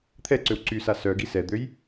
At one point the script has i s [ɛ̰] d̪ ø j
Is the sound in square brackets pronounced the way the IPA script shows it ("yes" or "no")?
no